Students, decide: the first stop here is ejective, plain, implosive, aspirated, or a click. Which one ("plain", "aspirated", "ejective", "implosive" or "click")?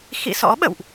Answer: implosive